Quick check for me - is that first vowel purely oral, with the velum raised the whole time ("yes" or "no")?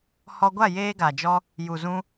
yes